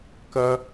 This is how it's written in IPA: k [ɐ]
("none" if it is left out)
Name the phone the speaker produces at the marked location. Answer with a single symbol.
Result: ɐ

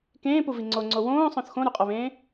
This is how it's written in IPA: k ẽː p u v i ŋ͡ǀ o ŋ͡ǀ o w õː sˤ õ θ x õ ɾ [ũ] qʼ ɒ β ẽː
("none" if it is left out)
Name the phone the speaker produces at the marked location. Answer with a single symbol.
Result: u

